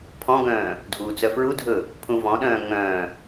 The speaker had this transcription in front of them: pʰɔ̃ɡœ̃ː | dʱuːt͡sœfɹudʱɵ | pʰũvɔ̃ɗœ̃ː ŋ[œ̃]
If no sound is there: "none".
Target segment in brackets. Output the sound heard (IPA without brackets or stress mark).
œ̃